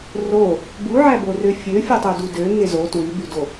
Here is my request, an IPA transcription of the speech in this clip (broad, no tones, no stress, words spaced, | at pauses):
ro | buʕæborø fʲøfʲutˤødu døŋe zo twybydo